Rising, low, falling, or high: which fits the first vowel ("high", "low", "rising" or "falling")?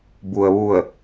low